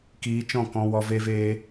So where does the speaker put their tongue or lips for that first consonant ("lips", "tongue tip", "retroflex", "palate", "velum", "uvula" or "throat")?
velum